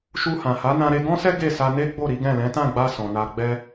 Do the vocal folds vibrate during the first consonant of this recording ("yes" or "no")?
no